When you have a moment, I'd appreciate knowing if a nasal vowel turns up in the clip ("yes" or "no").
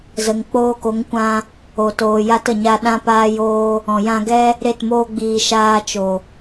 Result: yes